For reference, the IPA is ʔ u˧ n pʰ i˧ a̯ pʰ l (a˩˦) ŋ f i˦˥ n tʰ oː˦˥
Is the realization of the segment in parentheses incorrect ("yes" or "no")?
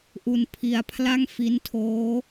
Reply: yes